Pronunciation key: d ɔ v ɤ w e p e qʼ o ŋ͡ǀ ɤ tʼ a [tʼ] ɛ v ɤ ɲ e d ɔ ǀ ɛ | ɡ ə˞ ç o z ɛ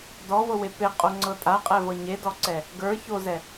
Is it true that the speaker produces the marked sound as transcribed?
no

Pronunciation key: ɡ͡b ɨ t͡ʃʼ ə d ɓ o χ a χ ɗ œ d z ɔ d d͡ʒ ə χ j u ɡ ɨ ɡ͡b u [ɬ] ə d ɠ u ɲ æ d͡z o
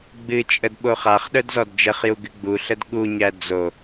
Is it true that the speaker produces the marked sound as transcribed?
yes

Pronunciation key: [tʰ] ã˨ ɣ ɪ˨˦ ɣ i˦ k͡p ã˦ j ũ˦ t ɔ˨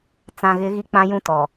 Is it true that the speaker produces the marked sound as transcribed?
no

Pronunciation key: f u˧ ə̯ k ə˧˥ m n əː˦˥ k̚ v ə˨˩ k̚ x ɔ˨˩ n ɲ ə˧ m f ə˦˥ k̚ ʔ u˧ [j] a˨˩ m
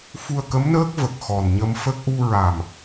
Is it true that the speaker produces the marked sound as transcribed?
no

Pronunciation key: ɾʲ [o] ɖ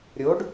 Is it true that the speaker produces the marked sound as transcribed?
yes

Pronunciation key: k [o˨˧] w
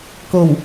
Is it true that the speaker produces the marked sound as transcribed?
no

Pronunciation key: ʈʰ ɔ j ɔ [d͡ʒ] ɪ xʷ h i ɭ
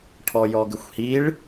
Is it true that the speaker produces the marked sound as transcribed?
no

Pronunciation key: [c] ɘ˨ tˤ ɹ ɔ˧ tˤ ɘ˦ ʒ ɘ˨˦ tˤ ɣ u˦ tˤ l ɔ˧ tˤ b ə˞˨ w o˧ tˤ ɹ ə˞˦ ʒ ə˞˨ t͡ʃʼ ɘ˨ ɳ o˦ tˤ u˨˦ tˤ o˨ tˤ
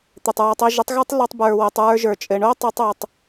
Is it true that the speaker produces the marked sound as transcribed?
no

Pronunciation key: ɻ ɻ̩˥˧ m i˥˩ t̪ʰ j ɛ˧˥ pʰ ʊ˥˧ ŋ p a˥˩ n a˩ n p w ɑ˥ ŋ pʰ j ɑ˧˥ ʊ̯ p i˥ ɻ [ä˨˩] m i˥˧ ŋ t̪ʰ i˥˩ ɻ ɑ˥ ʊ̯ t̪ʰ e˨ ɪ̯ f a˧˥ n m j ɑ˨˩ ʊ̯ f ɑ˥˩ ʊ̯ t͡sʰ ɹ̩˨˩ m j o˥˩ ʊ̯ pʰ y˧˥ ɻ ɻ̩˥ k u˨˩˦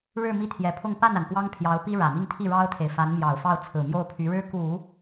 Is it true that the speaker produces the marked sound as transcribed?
yes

